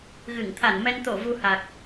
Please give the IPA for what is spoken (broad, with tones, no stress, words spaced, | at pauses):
ɣɨ˧˩ŋ t̪ʰa˧˩nmɛ˧n t̪o˧˩ vu˧ha˨˩k̚